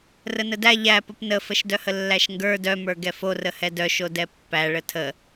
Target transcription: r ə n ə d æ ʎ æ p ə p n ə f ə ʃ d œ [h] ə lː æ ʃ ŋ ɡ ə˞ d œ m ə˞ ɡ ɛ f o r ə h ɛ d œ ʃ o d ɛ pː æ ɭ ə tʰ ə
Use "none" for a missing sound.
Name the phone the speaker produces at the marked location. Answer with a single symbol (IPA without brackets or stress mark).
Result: h